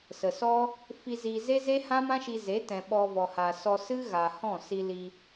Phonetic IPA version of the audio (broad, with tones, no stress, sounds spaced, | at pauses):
s ə˨ s ɔ˦ | f i˧ z iː˧ z e˦ z e˦ h ã˦ m ã˦ ʃ i˧ z e˨˦ t ɛ̃˨ ɓ ɔ˧ v ɔ˨ h a˨ s ɔ˧ s ɨ˦ ɣ a˨ h ɔ̃˦˨ s i˧ l i˧